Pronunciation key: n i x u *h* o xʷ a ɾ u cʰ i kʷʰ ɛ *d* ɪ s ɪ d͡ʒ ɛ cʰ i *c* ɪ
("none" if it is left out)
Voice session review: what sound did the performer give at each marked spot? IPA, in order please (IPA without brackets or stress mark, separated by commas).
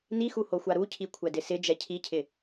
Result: h, d, cʰ